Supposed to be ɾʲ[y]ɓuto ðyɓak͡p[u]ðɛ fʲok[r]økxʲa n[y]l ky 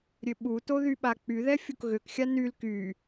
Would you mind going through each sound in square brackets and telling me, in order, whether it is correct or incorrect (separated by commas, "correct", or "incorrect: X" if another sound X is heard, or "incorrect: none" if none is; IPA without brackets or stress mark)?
incorrect: ø, incorrect: y, incorrect: ɣ, correct